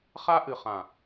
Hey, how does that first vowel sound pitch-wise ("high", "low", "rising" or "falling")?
high